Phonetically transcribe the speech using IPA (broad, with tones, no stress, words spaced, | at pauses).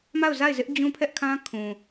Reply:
ma˦˨ʊ̯za˦˨ɪ̯zɪ˦ʔ d͡ʑũ˦pʰɛ˦ʔkʰã˦ kʰũ˨